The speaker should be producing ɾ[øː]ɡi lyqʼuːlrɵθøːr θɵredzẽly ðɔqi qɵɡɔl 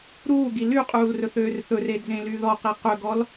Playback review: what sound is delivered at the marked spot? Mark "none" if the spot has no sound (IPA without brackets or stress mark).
uː